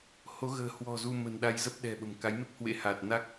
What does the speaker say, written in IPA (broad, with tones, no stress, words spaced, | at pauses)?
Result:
ho˨˦ɣə̤ː˨˩ hwɔ̤˨˩ zu˧ mə̤˨˩nɗa˧jzə˦˥p̚ ɗɛ̤˨˩ ɓə̤˨˩mka˨˦jme˦˥k̚ hwḛ˧˥ha˨˩t̚na˦˥k̚